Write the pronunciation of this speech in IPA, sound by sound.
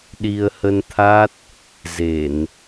ɗi˧ə̯hə˧nt̪ʰa˦˥t̚ | ze˧˩˨n

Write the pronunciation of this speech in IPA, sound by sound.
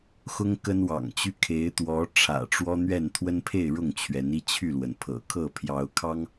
xʊ˦ŋkə˦nwɑ̰˨˩ŋt͡ɕy˦ kʰe˨˦ɪ̯t̪wɔ˨˦ ʈ͡ʂʰä̰˨˩ʈ͡ʂwɔ˦n̪ɥɛ˥˨n t̪ʰwə˦npʰe˥˨ɪ̯ ɻʊ˥˨ŋt͡ɕʰɥɛ˨˦ni˦ t͡ɕʰy˥˨lwə˩npʰɤ̰˨˩ kʰɤ˥˨pʰjɑ˨˦ʊ̯ kʰɑ˦ŋ

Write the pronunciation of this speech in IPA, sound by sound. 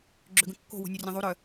ɡ͡ǁøɡə̃kːo̤ wo̤nʲorʲẽðˤu ɾœ

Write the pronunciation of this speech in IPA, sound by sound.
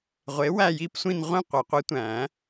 ʁʷe˨˥ wæ˥˧ji˥˧psʷĩ˥˧n ʁʷĩ˥˧qʷe˨˩˦qʷi˨˥tʷæ̃˨˩˦

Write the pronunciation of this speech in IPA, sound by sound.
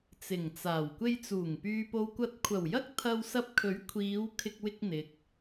t͡sɪ˨˩ŋt͡saː˨˩w kʷe˧jt͡suː˨˩ŋ pyː˨po˨wkʷɐ˨˥t̚kʷʰɐ˨˩w jɐ˥k̚t̪ʰɐ˧wsɐ˧p̚kʰɵ˨˥ɥ kʷʰiː˨˧w kʰɪ˧k̚wɪ˧k̚n̪ɪ˨k̚

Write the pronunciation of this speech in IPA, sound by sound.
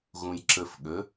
ɣũjǁəfɠə

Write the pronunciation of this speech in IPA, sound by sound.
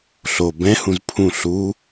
ɬo bɛ̃hũz pʰũ ɬu

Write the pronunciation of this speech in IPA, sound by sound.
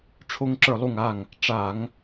ʈ͡ʂʰo˥ŋǁə˞˥˨lˠu˥˨ŋa˥˨ŋ | ʈ͡ʂa˧˩˧ŋ

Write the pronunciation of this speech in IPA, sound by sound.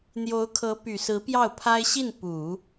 n̪jo˧˥ʊ̯kʰɤ˧˥ py˨˩sɹ̩˧˥ pjɑ˥˩ʊ̯pʰa˥ɪ̯ ɕi˥˩n pu˨˩˦

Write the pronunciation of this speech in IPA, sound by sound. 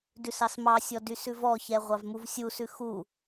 dʉsɑsmɑsʲɔ dysʉvɔçɛ ʁʷɑvmuvsʲusʉ xu

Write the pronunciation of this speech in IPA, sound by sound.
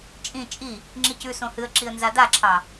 t͡ʃʼĩ t͡ʃʼi | ŋ͡ǁicʉ sõhɨə̯ǁiə̯ nzadaǁʰɑ

